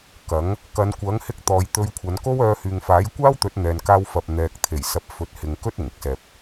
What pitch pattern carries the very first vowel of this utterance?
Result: rising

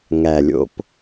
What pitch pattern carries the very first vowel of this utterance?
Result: low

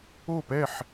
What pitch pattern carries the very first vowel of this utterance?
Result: falling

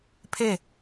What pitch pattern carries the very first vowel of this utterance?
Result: falling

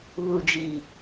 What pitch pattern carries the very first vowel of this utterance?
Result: low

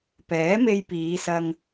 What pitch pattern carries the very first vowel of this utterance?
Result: rising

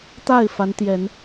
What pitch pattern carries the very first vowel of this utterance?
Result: falling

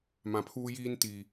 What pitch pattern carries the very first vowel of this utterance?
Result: low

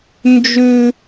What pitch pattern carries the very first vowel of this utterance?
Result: high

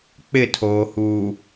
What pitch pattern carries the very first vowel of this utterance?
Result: falling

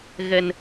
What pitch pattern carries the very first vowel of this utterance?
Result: low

